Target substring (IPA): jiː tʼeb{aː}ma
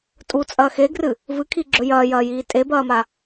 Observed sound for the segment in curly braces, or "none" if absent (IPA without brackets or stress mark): ɐː